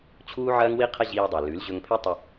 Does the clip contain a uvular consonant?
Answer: yes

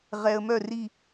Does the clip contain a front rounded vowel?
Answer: yes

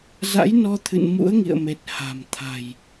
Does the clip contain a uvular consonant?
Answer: no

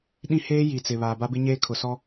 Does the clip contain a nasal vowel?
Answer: yes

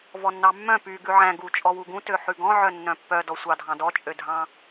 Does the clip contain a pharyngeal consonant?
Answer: yes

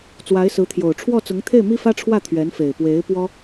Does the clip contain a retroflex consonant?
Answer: yes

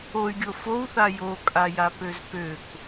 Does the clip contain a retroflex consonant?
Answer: no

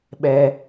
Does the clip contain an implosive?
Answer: yes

